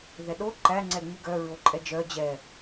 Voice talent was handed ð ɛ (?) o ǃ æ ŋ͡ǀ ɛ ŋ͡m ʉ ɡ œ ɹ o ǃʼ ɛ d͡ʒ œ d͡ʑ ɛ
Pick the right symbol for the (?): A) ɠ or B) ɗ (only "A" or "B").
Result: B